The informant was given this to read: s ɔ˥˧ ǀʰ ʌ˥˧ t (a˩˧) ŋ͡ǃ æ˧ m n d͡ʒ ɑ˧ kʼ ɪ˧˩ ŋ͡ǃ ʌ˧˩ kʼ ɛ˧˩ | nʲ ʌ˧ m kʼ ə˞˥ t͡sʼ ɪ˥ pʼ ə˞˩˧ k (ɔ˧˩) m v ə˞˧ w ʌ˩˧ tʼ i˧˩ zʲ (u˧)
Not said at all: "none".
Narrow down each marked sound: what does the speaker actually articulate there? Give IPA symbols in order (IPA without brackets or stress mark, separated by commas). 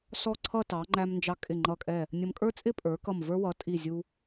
ɑ˩˧, ʌ˧˩, u˧